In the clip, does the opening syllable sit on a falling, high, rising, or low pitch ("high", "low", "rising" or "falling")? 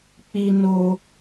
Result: high